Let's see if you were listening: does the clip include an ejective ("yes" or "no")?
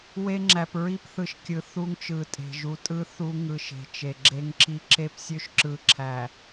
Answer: yes